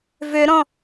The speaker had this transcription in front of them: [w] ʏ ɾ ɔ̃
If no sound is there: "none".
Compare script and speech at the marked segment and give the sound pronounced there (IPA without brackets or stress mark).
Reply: v